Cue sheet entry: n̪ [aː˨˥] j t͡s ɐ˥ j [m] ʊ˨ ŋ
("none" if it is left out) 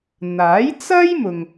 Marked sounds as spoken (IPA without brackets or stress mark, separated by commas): aː˨˥, m